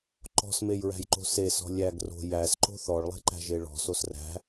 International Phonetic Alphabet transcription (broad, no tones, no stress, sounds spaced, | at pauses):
ǃ ɔ̤ s m e j ɹ æ̤ j ǃ o̤ s e s ɔ̤ lʲ æ ɡ r o̤ j æ s ǃ o̤ θ ɔ ɭ lˠ e̤ ǃ æ̤ ʒ e ɭ ɔ̤ s o s r æ̤